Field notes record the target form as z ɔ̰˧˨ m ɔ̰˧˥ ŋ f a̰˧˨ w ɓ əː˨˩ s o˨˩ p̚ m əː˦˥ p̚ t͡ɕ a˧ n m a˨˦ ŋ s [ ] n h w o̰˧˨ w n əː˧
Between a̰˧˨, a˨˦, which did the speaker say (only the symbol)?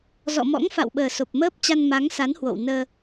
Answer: a˨˦